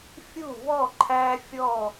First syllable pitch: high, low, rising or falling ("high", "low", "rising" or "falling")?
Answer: falling